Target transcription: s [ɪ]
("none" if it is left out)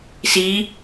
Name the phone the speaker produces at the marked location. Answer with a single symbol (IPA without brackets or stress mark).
i